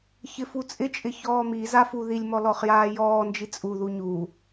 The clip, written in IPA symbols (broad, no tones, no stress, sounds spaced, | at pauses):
ç ɪ f u t͡sʼ ɪ t͡ʃʼ ɪ ç ɔː m i z a f u ð i lʲ m ɔ l ɔ χ j aː j ɔː n d͡ʒ i t͡sʼ u ð u ɲ u